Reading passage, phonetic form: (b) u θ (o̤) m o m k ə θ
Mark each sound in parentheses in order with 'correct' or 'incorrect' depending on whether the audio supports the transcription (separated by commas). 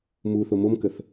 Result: incorrect, incorrect